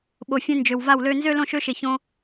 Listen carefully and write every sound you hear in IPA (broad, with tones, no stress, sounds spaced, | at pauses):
ɓ o˨ fʲ ẽ˧ n d͡ʒ ø˨ w v a˦˨ w l ø˧ n z ø˦ l õ˦˨ ʃ ø˦ ʃ e˨ ç õ˧